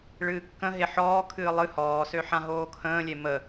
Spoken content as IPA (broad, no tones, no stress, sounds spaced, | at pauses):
ɭ ɨː kː ə̃ ɦ e ħ ɔː kʰ ɨː lˠ ɨ h ɔː s ø ħ ã ɦ oː kʰ ə̃ː lʲ e m ə